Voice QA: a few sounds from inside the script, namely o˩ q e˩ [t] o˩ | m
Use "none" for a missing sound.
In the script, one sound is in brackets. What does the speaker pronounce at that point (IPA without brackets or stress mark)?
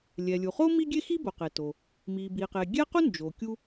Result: t